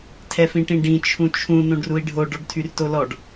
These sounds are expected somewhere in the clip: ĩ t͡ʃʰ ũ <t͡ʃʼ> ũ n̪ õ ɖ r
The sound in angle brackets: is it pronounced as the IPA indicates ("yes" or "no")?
no